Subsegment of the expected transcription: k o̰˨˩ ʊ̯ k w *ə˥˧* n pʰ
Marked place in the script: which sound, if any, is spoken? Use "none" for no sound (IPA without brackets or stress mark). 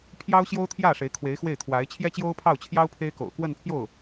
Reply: ə˥˧